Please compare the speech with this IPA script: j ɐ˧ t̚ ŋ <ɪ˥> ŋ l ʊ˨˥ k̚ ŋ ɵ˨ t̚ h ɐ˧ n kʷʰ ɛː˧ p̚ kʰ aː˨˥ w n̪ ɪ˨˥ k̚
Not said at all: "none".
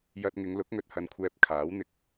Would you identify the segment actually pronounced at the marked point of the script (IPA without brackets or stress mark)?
ɪ˨˧